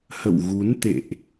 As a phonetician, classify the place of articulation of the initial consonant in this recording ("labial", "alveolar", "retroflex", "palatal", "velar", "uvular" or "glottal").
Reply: glottal